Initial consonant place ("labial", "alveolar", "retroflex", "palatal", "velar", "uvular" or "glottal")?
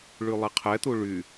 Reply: retroflex